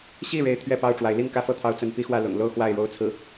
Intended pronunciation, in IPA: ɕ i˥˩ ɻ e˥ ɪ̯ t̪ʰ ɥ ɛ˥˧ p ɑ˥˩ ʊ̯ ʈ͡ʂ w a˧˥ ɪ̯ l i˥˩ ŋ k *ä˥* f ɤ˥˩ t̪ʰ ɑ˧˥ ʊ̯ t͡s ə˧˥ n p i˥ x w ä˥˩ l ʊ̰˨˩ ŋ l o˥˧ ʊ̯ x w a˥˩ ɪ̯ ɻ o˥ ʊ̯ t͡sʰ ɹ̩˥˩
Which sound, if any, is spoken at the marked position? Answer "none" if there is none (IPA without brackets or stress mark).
ä˥